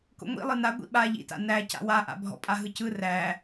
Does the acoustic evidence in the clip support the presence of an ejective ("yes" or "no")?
yes